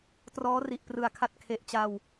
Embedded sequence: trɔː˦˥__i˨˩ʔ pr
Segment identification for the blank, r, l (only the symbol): r